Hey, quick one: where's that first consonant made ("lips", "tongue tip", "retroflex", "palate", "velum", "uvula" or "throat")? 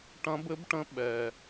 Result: retroflex